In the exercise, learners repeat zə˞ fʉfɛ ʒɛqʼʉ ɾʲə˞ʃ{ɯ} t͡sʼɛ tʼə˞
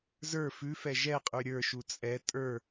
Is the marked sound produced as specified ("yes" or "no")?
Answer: no